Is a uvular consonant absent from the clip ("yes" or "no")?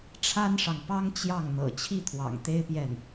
yes